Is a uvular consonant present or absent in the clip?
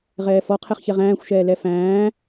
present